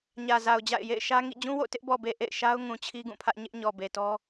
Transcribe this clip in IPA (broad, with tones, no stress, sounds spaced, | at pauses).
ɲ ä˨ z a˨ ʊ̯ d͡ʑ a̰˦˨ ɪ̯ j ḛ˦˨ ɪ̯ ʃ ä˦ ŋ ḭ˦˨ d͡ʑ ũ˦ w o̰˦˨ t ɪ˦ ʔ b ɔ˨ b e˨ ʔ ḛ˦˨ ɪ̯ ʃ a˦ ʊ̯ ŋ ũ˨ t͡ɕʰ i˦ ɡ ũ˦˨ pʰ ä˦ ʔ ɲ ɪ˦ ʔ ɲ ɔ˨ b e˨ t ɔ˦